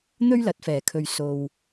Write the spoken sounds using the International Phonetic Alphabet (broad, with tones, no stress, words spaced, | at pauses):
n̪ɵ˥ɥlɐ˨˥t̚fɛː˨˩kʰɵ˨ɥ so˨w